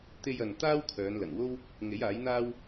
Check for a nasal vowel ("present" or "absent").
absent